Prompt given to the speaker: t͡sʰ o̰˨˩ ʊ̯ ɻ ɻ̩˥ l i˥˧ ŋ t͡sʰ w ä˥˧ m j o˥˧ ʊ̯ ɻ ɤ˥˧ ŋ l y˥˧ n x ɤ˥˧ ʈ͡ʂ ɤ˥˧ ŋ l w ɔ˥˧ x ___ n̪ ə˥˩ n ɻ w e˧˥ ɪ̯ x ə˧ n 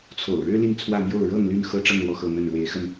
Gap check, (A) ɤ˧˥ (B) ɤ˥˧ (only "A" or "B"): B